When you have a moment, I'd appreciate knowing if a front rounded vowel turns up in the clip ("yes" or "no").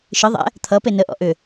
yes